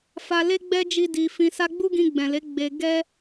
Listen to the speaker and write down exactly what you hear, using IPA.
f a˧ l e˦ ɡ͡b ɛ˦ d͡ʒ i˦ d i˧ f ĩ˧ s a˦ ɡ͡b u˦ ɡ ĩ˧ ɡ͡b ɛ̃˨ l e˨˦ ɡ͡b e˧ ɡ ɛ˦

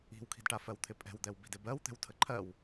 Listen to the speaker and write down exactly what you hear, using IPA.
i̤ w kʰ i̤ d ʈ a f ɜ w t̪ʰ ɪ pʼ ɛ̤ w d̪ ɛ w b i̤ d ɪ b ɜ w t̪ ɛ̤ w tʰ ə ǃʰ ɜ w

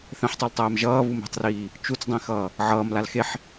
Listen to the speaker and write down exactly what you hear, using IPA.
θ ɛ̃ ħ tˤ u l tˤ ɛː m ʒ ʌː β u m e̤ tˤ r iː | t͡ʃ u t͡s dˤ ĩ x ʌː | ʕ ʌː m l a l x e ħ

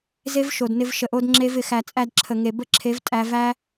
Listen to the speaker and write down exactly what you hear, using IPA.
z e˦ v ʃ o˨ d n ɪ˧ v ʃ ə˨ ʔ o˧ d ŋ͡ǁ e˧ v ɪ˨ x æ˨ t͡sʼ æ˧ d ǁʰ ə˨ ŋ e˨ b ə˦˨ ǁʰ e˨˦ v tʼ æ˧ v æ˧

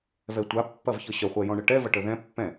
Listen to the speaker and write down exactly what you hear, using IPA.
v ɛ tʷ a pː ɐ v ç ə ɕ ə χʷ ɛ j ɔ̃ ɳ ə ʈ ɛ v ɐ ʈ ə ð ɛ̃ pː ɛ̃

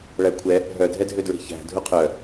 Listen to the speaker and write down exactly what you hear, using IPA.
ɭ æ kʷʰ ɛ | ɦ œ dʱ ɛ dʱ ø d ɹ e̤ ç æ̤ dʱ u qʰ œ

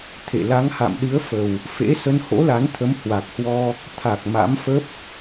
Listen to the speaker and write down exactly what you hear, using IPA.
t̪ʰ ḛ˧˨ l a˨˦ ŋ h a̰˧˨ m ɗ ɨ˨˦ ə̯ f ə˨˩ w | f ḛ˧˥ s ə˧ n h o̰˧˥ l a˨˦ n t̪ʰ ə˨˦ m h w a˨˩ k̚ h w ɔ˧ | t̪ʰ a˨˩ k̚ m a̰˧˥ m f ə˦˥ p̚

